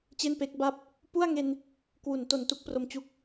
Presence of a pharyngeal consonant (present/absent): absent